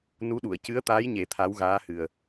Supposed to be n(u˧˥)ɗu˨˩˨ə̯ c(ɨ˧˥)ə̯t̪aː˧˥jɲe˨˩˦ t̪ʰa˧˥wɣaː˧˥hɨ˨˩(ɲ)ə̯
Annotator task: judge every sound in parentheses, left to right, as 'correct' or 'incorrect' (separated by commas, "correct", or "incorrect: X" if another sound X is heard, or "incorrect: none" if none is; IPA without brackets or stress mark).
correct, correct, incorrect: none